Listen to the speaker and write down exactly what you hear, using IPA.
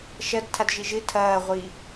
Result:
ʃ ɐ d tʰ a d ʒ i ʒ ɨ tʰ ɐː ʁʷ i

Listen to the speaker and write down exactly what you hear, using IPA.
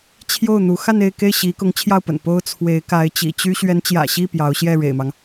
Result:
t͡ɕʰ j o˥˩ ʊ̯ n̪ u˧˥ x a˥˧ n e˥˧ ɪ̯ k e˥˩ ɪ̯ ɕ i˧˥ k ʊ˧˥ ŋ t͡ɕʰ j ɑ˥˩ ʊ̯ p ə̰˨˩ n p o˥ ʊ̯ t͡sʰ w e˧˥ ɪ̯ k a˧˥ ɪ̯ t͡ɕ ḭ˨˩ t͡ɕ y˥ ɕ ɥ ɛ˧˥ n t͡ɕ j ä̰˨˩ ɕ i˥˩ p j ɑ˧˥ ʊ̯ ɕ j ɛ˥˩ ɻ ḛ˨˩ ɪ̯ m ɑ˦ ŋ

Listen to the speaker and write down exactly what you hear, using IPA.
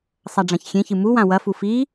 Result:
sˤ a ɖ͡ʐ ã ç xʲ ẽ ç ɨ m u w ã w ɐ f u f i

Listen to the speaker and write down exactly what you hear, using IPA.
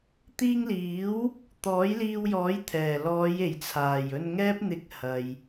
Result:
t̪ iː˧ ŋ l iː˨˥ w | t̪ ɔː˨˥ j l iː˧ w j ɔː˨˥ j t̪ʰ ɛː˨˩ l ɔː˨˧ j e˨˩ j t͡sʰ aː˨˩ j ɵ˧ n ŋ ɛː˥ p̚ n̪ ɪ˧ k̚ h ɐ˨ j

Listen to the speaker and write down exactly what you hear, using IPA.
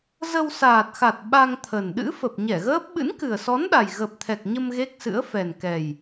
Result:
z ə˧ w s aː˨˩ t̚ x a˨˩ t̚ ɓ a˧ ŋ t̪ʰ ə˨˩ n ɗ ɨ̰˧˥ f ə˨˩ p̚ ɲ ɛ˧˩ ɣ əː˦˥ p̚ ɓ ɨ̰˧˥ n k ɨ˨˩ ə̯ s ɔ˨˦ n ɗ a˨˩ j ɣ ə˨˩ p̚ t̪ʰ ɛ˨˩ k̚ ɲ ə˧ m ɣ e˦˥ k̚ s ɨ̰˧˥ ə̯ f ɛ˨˩ n k ɛ˨˩ j

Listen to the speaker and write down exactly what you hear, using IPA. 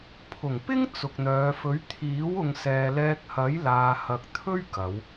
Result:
pʰ ʊ˨˩ ŋ p ɪ˥ ŋ t͡s ʊ˨ k̚ n̪ œː˨˧ f ɵ˨˥ ɥ t̪ʰ iː˨˥ w ʊ˨ ŋ s ɛː˨ l ɛː˧ k̚ h ɐ˨˥ j l aː˧ h ɐ˧ k̚ t̪ʰ ɵ˥ ɥ k ɐ˨˧ w

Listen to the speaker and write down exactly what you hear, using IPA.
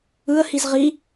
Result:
ɯ ə̯ h i z ʁ i

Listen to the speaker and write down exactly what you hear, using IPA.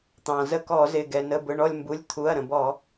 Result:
t̪ ɑ̃˩ z ə˦˨ k ɔ˧˩˧ z ɪ˩˧˩ ɡ ɛ˩ n ə˩˧˩ b ʊ˩˧˩ ɳ ɔ˦˨ lʲ m b u˩˧˩ lʲ t̪ʰ u˩˧˩ ɐ̯ ɾ ə̃˩ b ɔ˧˩˧

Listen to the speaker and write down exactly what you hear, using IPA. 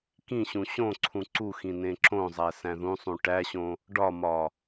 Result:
k ĩ ɕ ũ ɕ õ ǀʰ ũ ǀ u x ĩ n ẽ ǁ õ zˤ æ s æ̃ ð ũ sˤ ũ ʈ æ ɕ õ | ɖ ɒ m ɒ

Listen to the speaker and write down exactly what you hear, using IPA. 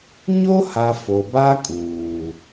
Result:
ɲ o˦ h a˨ f o˨ b a˦ kʼ uː˨

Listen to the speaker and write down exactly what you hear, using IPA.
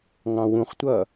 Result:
ŋ ɑ̃ w ũ χ tʷ ʌ

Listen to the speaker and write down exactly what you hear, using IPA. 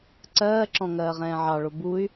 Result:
ǀ ɜː ǁ ɔ̃ ŋ ɜː ʁ ɛ̃ː ʕ ɑ ɭ o b u y̯

